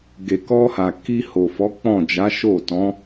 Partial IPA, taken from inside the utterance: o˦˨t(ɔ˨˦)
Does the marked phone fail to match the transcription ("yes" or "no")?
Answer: yes